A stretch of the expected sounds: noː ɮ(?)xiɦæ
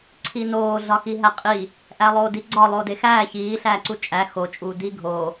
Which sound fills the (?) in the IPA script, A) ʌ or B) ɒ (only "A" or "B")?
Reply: B